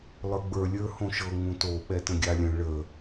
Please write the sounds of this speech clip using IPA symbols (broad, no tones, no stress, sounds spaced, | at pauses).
lˠ ə˞ ɡ͡b ə˞ lʲ ə˞ h õ ʃ ɤ ŋ ũ t o ɓ ɛ t ə̃ ɡʲ a lʲ ə̃ ɭ ə